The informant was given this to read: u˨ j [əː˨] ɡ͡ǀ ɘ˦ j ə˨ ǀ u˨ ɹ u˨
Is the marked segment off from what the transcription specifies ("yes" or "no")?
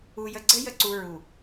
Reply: yes